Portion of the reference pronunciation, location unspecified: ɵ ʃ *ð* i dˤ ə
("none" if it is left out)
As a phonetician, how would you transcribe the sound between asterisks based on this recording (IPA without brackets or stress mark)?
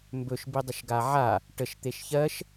b